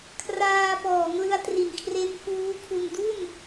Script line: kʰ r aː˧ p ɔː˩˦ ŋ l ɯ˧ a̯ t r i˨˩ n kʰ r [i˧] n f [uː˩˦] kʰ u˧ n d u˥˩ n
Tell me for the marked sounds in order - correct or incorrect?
incorrect: e˧, incorrect: uː˦˥

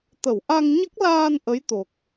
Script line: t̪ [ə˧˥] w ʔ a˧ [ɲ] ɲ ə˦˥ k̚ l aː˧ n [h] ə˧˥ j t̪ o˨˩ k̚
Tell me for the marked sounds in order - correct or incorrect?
incorrect: ə˨˩˨, incorrect: ŋ, incorrect: ʔ

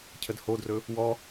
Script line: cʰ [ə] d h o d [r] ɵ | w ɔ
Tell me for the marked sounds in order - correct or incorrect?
correct, correct

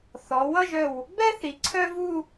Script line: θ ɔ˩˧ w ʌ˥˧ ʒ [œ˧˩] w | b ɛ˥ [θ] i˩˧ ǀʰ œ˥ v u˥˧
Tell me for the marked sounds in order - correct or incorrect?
correct, correct

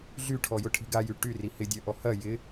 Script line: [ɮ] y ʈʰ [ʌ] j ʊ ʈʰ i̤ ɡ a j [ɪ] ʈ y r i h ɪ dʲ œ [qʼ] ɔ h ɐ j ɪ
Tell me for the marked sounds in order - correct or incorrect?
correct, incorrect: ɔ, incorrect: y, incorrect: ʔ

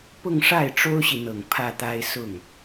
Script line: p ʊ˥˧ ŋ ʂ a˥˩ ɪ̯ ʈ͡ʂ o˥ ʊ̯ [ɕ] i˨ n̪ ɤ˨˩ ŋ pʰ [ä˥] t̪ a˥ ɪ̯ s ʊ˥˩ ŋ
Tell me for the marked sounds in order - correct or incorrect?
correct, incorrect: ä˥˩

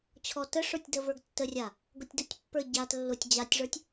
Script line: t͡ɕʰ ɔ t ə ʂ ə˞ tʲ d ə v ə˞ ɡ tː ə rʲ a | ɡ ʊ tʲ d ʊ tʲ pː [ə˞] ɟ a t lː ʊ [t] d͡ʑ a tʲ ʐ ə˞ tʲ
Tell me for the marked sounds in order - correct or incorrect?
correct, incorrect: tʲ

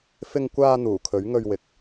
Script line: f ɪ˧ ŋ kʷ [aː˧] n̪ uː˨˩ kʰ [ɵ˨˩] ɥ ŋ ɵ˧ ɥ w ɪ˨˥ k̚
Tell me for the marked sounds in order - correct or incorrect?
correct, incorrect: ɵ˨˥

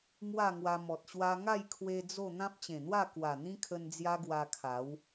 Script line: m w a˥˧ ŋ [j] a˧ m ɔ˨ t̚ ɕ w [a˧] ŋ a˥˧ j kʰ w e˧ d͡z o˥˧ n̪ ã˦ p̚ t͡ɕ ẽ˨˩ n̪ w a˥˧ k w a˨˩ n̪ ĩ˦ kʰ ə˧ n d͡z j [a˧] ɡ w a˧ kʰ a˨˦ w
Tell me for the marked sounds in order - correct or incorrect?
incorrect: w, correct, incorrect: a˦

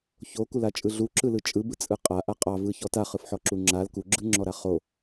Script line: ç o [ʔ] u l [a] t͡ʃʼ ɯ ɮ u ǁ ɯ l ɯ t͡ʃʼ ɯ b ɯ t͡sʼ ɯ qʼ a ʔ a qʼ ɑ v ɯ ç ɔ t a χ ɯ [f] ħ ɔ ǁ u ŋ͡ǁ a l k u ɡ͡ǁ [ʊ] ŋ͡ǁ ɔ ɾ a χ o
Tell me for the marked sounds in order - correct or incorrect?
incorrect: k, correct, correct, incorrect: ɯ

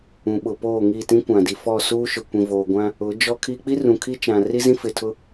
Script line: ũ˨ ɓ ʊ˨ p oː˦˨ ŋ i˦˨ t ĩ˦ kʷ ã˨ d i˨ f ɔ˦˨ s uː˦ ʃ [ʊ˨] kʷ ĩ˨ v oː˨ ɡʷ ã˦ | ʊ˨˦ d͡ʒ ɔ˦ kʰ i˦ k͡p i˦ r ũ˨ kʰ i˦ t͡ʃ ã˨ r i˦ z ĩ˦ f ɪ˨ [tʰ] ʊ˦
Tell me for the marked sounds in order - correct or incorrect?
correct, correct

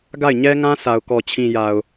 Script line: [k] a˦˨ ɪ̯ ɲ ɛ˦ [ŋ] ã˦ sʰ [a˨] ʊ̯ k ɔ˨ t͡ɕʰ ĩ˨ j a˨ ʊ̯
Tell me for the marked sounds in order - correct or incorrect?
incorrect: ɡ, correct, correct

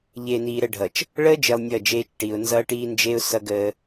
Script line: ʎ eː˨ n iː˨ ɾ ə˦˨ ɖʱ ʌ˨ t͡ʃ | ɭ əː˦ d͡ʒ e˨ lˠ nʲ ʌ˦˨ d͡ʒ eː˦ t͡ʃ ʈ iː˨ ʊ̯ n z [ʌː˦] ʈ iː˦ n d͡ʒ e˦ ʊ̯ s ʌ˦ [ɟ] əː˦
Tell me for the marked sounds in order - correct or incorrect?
correct, incorrect: ɡ

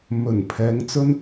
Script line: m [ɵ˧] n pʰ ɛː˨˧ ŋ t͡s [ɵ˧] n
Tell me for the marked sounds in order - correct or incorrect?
incorrect: ɵ˨˩, incorrect: ɵ˥

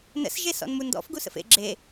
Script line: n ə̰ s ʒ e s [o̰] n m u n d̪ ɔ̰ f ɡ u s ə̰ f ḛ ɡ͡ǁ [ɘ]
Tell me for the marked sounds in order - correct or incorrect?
incorrect: ɔ̰, incorrect: e

